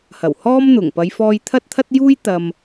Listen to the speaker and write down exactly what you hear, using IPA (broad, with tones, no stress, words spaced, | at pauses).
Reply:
hɐ˨˩whɔː˥mn̪ʊ˨˩ŋ pɐ˨˧jfɔː˧j t̪ʰɐ˥t̚t̪ʰɐ˥t̚juː˥jt̪ɐ˨m